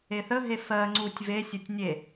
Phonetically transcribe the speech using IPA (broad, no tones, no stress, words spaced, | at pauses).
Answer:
eθəɦe fɜŋ͡ǀutʲ vesʲətʲ nʲe